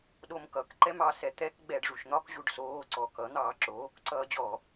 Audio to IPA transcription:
ɗ o m k ʌ k ǃ ɛ m ɑ s ɛ t̪ ɛ k ɡ͡b ɛ ɖ ʐ u ʃ n̪ ɒ k ʑ u ɖ s oː ǀ ɔ k ʌ n̪ ɑː ǁ o | ǀ ʌː d͡ʑ ɔ

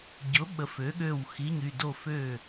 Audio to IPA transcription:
ɟ ʊ˩˥ ɓ ə˩˥ f ø˩˥ ɠ ø˧˩ w x i˩˧˩ ɲ y˧˩ d o˧˩ f ø˧˩

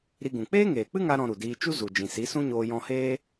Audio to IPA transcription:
ɾ i˧ ɡ ũ˨ k͡p eː˦ ŋ eː˨ k͡p ɨ˦ ŋ a˧ ɾ ɔ̃˧ ɾ u˨ d iː˧ t͡ʃ u˦ z u˨ d͡ʒ ĩ˨ s i˨˦ s ũ˦ ɲ oː˧ j ɔ̃˧ h eː˦

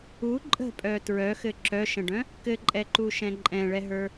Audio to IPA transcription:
u ǃʼ ə̤ pʼ œ t ɹ œ x ɘ ǁ œ ʃ ə̃ ɖ œ̃ | k ɘ ǃʼ ɛ ǃ u ʃ ɛ̃ ǃʼ ɛ̃ ɭ ɛ ɦ ə˞

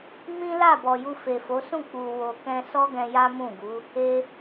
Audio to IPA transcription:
m ĩ˦ l a˦˨ b ɔ˨ j u˧ f e˨ f o˨˦ s ũ˦˨ k͡p u˨ w o˨ k ɛ̃˧ s ɔ˦ ɡ ɛ̃˧ j a˦ m ũ˦˨ ɡ u˨˦ | e˧

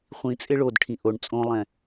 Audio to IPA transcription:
χʷ ĩ t͡sʼ ɪ ɭ o d ʈʰ ĩ ʔ o ɳ t͡sʼ õ lˠ ɛ̃

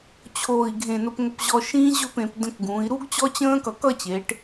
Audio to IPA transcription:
t͡ɕʰ oː˧˩ i̯ ɡʱ ẽ˧˩ n ʊ˧ p ŋ ə˧ p ʑ ɔ˧ ʃ ĩː˥ ʑ ɵ˥˧ p ẽ˩˧ p d ə̃˧ k ɡ ũː˩˧ i̯ ɾ u˥ ɡ t͡ɕ ɔ˥ t͡ɕ ə̃ː˥ k ʌ˧˩ k ʌ˥˧ t͡ɕ e˩˧ ʈ

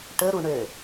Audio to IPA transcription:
ʈ ə ɾ u ɳ ø

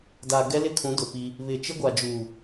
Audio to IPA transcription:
d a˨ ɡ ɛ˦ l ɪ˦ kʰ ũ˨˦ d ʊ˨ p i˦ | β ɪ˨ t͡ʃ ɪ˦ ɡʷ a˨ d͡ʒ uː˨

